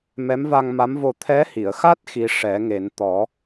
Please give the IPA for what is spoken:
m ɛ˧˥ m v a˧ ŋ m a˧˥ m v o˧ t̪ʰ ɛ˧˥ h i˨˩˨ ə̯ x a˦˥ t̚ x i˧˥ ʂ ɛ˨˩˦ ŋ e˨˩˦ n t̪ ɔ˨˩˦

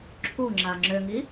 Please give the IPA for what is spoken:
ǁʰ u ŋ͡ǁ a ŋ͡ǁ ʏ ŋ i

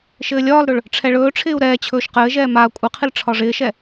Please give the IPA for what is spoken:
ʃ ɘː lʲ ɒː l ɾ ɵ ɭ | ʈ͡ʂʰ ɛ ɭ ɵː ʈ͡ʂʰ ɪː u̯ ɾ ɛː t͡ɕʰ ɵː ʃ q ɘː ʒ ɛː m aː kʷʼ ɪ qʰ ɪ l ʈ͡ʂʰ ɒ ʐ ɪː ʃ ɛ

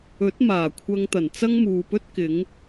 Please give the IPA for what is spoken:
ɵ˨˥ t̚ m aː˨˩ kʷʰ ɐ˧ ŋ t̪ ɐ˨˩ n t͡s ɐ˥ ŋ m uː˨ p ɵ˥ t̚ k ɪ˨˥ ŋ

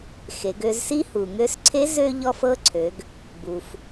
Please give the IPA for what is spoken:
x e˩˧ ɡ ø˧ z s i˥ h u˩ ŋ ø˧ s ǀʰ e˧˥ z ø˥ ʎ ɔ˥ f ɤ˥ ǀʰ ø˩˧ ɡ | b u˩ f

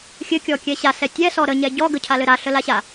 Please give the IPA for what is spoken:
xʲ ɘ kʲ ɔ kʲ ɛ ɕ a s ɛ tʲ ɛ s ɔ ɾ ə ɲ ɛ ɟ ɔ ɡ ə cʰ a l ɘ ɾ a ɬ ə l a ɕ a

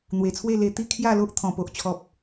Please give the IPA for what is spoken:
n̪ w e˨˩ t͡sʰ w e˥˧ l e˧ t̪ i˥˧ kʰ j a˥˧ l o˦ ʔ t̪ʰ ɔ̃˨˩ p o˨ ʔ t͡ɕʰ ɔ˨ p̚

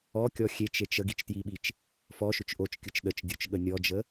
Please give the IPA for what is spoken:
ɔ kʲ ɔ xʲ e t͡ʃ e t͡ʃ ə ɡ i t͡ʃ t j i ɓ i t͡ʃ | f ɔ ʃ ʏ t͡ʃ ʔ o t͡ʃ kʲ ɯ t͡ʃ ɗ ə t͡ʃ dʲ o t͡ʃ ɠ ə nʲ ɔ d͡ʒ ə

